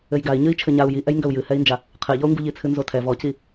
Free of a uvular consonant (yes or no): no